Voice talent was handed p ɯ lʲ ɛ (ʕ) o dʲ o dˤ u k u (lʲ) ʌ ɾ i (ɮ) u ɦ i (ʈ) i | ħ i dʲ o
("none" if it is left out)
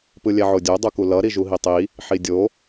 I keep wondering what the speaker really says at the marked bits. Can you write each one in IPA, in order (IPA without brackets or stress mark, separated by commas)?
ʕ, l, ʒ, tˤ